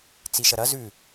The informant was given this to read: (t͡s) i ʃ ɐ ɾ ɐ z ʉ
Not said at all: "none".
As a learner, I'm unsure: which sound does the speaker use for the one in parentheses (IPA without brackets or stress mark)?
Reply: t͡s